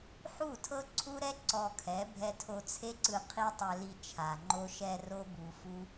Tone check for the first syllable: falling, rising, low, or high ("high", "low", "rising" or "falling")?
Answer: falling